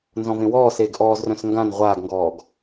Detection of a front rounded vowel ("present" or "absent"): present